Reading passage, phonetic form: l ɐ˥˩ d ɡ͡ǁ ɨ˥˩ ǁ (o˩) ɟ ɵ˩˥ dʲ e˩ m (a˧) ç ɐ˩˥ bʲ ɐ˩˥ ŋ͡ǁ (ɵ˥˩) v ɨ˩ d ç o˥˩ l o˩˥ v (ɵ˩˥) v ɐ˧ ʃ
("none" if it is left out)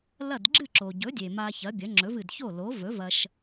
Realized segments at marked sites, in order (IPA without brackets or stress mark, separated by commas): o˩, a˧, ɵ˩˥, ɵ˩˥